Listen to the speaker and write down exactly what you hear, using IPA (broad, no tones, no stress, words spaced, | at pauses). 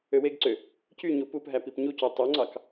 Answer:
øweɡǀø | cy ɲupupɦæ pipɲuco tˤøŋ͡ǀɑk